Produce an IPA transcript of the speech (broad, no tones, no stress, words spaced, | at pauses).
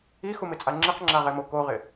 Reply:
ixumɪt͡sʼa ŋ͡ǁiqŋ͡ǁaʁɛmo koʁɪ